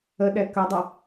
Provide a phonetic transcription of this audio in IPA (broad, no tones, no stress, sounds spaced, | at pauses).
ə ɗ ɛ k ɐ dˤ ɐ